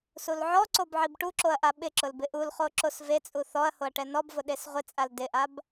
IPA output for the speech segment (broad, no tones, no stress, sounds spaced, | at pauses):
s u l ʕ ɔ ǀ o b ʕ i b ʈ u ǁ o ɐ̯ ʔ a ɓ ɪ ǁ ʊ l b ɪ ʔ u l χ o ǁ o s v e t͡sʼ u θ ɔ ɐ̯ h o ɐ̯ ʈ ɛ n ɔ b v ʊ ɗ e s ʁʷ ɪ t͡sʼ a l d ɪ ʔ a b